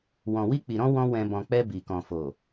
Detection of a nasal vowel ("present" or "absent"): present